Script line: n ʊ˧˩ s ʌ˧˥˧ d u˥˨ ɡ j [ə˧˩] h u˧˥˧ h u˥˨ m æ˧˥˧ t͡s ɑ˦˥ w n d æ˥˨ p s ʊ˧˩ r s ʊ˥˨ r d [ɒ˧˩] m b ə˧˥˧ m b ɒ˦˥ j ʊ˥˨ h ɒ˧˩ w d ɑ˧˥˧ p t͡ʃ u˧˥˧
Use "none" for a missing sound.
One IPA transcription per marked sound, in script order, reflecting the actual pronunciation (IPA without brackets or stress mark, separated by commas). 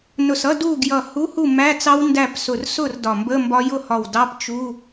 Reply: ʌ˧˩, ɒ˧˩